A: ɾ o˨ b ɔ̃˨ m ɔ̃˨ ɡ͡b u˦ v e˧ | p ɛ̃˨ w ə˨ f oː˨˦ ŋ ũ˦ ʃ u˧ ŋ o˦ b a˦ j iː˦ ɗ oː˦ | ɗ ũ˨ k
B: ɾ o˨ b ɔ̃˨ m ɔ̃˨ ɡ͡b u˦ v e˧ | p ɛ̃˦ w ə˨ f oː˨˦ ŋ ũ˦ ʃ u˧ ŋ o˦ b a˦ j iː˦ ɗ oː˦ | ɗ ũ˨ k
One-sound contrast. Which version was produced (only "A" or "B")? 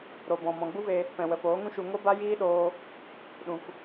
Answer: A